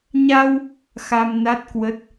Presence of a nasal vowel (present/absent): absent